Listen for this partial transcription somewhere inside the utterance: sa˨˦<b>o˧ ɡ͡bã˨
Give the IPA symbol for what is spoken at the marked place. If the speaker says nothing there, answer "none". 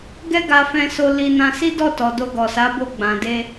b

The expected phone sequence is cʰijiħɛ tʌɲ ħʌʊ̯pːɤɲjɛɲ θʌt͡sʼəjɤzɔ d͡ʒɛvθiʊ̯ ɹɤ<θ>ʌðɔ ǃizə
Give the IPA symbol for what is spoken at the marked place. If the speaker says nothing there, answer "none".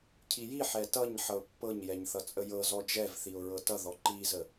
t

